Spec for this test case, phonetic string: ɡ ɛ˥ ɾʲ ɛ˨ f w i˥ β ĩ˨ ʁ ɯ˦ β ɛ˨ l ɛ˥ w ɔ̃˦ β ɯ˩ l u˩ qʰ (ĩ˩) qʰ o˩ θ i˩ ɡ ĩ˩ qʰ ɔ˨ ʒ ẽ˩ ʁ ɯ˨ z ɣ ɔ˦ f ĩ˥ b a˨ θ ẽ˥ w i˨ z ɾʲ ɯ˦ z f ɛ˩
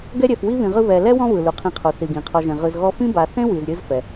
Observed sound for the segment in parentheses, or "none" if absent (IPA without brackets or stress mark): ĩ˨